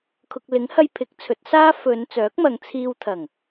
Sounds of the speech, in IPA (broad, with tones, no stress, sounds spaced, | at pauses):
kʰ ʊ˨ k̚ l ɪ˨˥ ŋ h ɐ˧ j pʰ ɪ˨˥ k̚ t͡sʰ ɵ˨˥ t̚ s aː˥ f ɵ˨˧ n t͡s œː˨˥ k̚ m ɐ˨˧ ŋ t͡sʰ iː˧ w t̪ʰ ɐ˨˩ ŋ